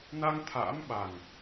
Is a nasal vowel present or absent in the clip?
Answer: absent